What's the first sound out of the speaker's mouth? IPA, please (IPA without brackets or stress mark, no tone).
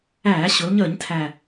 æː